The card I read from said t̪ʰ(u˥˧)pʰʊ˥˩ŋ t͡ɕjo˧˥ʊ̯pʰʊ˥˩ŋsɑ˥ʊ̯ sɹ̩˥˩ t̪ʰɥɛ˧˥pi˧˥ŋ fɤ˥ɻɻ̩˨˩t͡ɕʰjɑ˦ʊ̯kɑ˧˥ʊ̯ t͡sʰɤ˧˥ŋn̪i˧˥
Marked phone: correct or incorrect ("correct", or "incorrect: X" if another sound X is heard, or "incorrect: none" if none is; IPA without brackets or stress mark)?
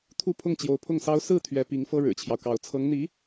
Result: correct